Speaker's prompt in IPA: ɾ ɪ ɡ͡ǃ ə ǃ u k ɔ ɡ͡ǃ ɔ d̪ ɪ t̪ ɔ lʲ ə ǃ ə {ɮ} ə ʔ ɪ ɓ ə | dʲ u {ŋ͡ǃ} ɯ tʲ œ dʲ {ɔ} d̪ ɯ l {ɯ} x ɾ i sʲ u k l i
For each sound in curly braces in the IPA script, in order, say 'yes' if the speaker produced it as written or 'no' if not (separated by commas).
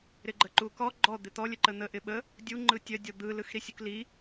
no, yes, yes, yes